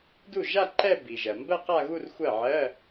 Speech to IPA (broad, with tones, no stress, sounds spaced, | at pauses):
d u˥˩ ʒ a˥˧ ǃ ɛ˥˧ b i˩ ʒ ɜ˩ m b ɜ˥˧ q a˥˧ ɣ u˥˧ r xʷ ɜ˥˩ ʕ ɜ˧˥˧